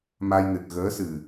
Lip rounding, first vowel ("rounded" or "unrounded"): unrounded